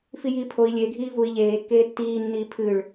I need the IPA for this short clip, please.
fijiːpʰoi̯ lʲeɡʱiː vui̯ ʎeːkːeː tːiː nːiːpʰɨɭ

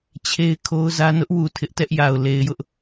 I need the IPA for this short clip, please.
t͡ɕʰe˦ɪ̯kʰo˦ʊ̯zä˦ nʊ˦ʔwu˨ tʰɪ˦ʔtɛ˦ʔja˨ʊ̯ le˨ɪ̯jʊ˦ʔ

